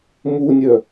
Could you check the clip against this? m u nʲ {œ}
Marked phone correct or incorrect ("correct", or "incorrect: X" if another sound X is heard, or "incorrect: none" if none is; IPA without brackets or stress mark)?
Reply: correct